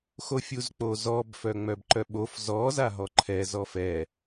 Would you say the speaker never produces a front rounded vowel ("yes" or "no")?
no